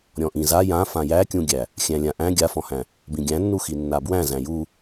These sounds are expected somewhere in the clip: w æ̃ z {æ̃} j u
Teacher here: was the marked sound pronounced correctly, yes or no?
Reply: yes